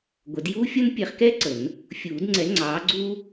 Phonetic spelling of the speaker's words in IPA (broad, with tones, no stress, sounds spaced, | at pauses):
ɡʷ ə˨˩˦ d j uː˥ fʲ ʌ˥ n pʲ ɛ˨˥ χ k ɛ˥ ǀ ə˨˩˦ n | fʲ uː˨˩˦ d ŋ͡ǀ ɛ˨˥ ŋ͡ǀ ɑː˨˥ ɡ͡ǀ uː˥